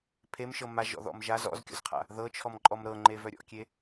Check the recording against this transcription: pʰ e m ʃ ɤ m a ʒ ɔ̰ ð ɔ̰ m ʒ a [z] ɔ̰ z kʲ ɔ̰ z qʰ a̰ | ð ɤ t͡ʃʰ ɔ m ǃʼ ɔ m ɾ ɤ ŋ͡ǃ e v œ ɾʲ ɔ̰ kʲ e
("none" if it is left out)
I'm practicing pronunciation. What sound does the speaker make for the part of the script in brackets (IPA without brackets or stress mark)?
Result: z